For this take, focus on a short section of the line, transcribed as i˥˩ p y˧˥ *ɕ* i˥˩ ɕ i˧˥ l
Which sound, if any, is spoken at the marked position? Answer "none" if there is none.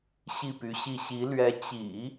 ɕ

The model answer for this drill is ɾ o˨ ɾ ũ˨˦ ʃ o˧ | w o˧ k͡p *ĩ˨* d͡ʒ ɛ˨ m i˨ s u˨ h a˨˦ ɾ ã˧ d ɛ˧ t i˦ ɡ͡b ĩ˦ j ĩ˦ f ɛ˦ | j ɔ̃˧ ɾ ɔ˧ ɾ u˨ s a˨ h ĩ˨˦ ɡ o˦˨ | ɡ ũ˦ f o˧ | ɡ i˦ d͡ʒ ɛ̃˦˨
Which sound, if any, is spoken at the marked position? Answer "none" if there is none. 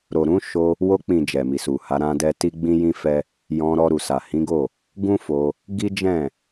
ĩ˨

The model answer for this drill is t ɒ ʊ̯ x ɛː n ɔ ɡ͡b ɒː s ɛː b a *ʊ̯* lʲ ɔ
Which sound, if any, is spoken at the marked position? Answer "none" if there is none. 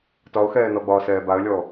ə̯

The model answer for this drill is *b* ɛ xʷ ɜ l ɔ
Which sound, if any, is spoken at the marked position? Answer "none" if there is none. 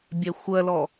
bʲ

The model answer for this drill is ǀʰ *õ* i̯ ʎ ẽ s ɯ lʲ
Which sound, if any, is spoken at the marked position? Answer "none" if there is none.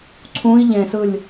ũ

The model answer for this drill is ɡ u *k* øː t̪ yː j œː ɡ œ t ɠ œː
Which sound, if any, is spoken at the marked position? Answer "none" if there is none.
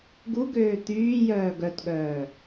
ɡ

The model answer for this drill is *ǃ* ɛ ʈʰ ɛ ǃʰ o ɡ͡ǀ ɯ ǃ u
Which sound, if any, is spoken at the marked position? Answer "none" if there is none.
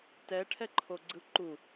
t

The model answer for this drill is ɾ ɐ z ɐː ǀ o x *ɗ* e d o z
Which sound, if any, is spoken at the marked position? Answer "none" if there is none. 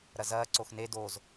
n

